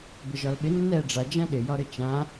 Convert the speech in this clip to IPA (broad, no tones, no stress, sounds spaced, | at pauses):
b ɪ ʒ ɒ l ɓ ɪ nː ɛ ɖ͡ʐ a d͡ʒ ã ɗ ɪ j ɒ ɾ ɘ t͡ʃ ã